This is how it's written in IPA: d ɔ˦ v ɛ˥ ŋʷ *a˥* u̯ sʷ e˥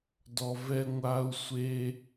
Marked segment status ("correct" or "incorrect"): correct